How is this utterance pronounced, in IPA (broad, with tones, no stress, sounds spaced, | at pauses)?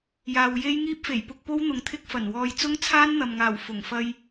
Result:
j aː˨ w j e˥ j ŋ iː˥ p̚ f e˨˩ j p ʊ˧ k̚ p o˥ w n̪ ʊ˨ ŋ t̪ʰ ɪ˥ k̚ f ɐ˨˩ n w ɔː˧ j t͡s ʊ˥ ŋ t͡sʰ aː˥ n n̪ ɐ˨ m ŋ aː˨˩ w f ʊ˨˩ ŋ f ɐ˧ j